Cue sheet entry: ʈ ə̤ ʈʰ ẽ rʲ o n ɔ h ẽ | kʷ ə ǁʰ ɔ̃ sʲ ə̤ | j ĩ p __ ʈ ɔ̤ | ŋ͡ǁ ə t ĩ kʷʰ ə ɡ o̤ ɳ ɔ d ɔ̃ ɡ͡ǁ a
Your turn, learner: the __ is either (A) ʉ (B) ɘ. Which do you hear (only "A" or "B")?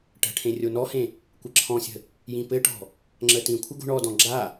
B